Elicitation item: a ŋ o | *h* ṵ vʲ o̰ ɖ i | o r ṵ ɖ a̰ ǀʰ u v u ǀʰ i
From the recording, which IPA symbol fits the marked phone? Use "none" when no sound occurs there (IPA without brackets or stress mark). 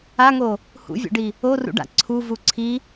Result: h